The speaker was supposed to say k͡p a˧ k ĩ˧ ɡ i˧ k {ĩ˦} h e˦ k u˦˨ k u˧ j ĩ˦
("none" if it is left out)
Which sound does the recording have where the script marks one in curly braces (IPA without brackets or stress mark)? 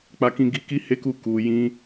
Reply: i˦